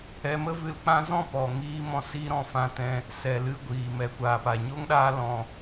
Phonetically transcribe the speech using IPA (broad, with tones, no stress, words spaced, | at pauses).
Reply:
ɛ˧mə˦vɨ˧lk͡pã˦ zɔ̃˦˨pɔ˨ŋiː˧mɔ̃˧ siː˦ɾɔ̃˦˨fã˦tɛ̃˦ | sɛ˨ lɨ˧ɡʷiː˨ mɛ˨kʷaː˨pa˨ ɲo˦ŋɗaː˦lɔ̃˧